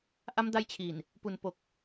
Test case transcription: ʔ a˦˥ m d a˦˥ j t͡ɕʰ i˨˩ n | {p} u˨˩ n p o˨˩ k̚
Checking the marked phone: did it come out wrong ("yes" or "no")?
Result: no